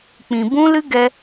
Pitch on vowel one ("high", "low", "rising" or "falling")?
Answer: low